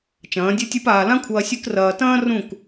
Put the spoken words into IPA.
t͡ʃɐ̃ː˨˦dʲɨ˦tʲɨ˦paː˧ lã˦kʷʰɐː˧ sʲɨ˦krɐː˧ tɐ̃ː˦ rũ˦˨k

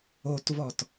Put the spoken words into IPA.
otvɔt

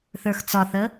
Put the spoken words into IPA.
θə˞xt͡sɒθə

